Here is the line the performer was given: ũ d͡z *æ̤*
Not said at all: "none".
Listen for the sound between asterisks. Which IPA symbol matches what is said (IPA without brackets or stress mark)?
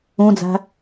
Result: æ̤